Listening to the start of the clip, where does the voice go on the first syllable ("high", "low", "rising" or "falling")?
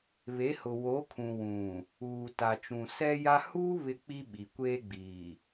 rising